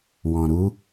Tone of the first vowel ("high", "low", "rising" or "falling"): low